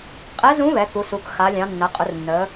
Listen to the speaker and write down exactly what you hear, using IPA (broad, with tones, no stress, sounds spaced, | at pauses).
qʼ ɛ˧˥ z ũ˧˥ β ɛ˩˧ k u˩˧ s u˩˧ k x a˩˧ lʲ ɑ̃˩˧ nː ɐ˩˧ qʼ ʊ˩˧ r nː ə˩˧